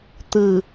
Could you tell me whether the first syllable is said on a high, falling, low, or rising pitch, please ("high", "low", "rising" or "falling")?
low